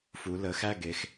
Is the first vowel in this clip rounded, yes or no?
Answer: yes